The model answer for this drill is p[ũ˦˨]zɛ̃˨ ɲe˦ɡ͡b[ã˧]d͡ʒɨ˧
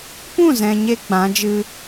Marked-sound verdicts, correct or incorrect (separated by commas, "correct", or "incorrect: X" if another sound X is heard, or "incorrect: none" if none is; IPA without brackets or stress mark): correct, incorrect: ã˨˦